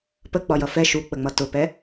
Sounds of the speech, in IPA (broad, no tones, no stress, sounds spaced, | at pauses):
p ə ɡ͡b ɒ j ʌ f ɛ ʃ u k͡p ə ŋ͡m ʌ t ʊ p ɛ